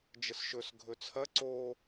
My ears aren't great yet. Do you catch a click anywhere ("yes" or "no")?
yes